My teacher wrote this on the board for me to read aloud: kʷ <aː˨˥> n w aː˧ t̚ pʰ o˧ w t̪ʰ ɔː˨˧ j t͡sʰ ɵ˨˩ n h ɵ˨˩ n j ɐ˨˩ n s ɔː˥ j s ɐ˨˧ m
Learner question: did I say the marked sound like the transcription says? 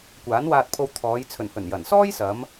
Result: yes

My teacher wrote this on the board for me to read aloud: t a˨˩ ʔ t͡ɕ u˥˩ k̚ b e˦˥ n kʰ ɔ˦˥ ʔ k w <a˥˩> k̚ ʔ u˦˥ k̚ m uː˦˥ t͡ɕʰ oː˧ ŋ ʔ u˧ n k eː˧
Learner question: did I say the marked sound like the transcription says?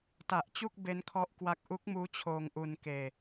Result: no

